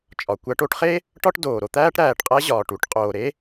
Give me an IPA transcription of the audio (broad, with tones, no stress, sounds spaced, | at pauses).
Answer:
t͡ʃʼ ɒ˩ kʷ æ˧ ʈ o˧ ʈ χ e˥ | ʈ ɒ˥ ʈ d oː˩ ɾ o˧ t̪ æː˥ ʈ ɾ æː˩ ʈ qʼ æ˥ ʑ ɒː˩ ʈ u˧ ʈ qʼ oː˩ ɾ e˥